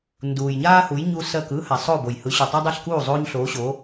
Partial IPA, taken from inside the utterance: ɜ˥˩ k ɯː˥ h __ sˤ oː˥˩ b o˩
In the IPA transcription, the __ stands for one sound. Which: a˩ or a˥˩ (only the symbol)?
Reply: a˩